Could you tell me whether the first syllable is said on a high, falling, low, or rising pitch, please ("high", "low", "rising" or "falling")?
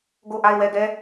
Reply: falling